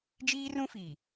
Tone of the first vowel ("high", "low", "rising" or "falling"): high